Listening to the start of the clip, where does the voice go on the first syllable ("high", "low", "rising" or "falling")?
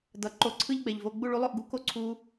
rising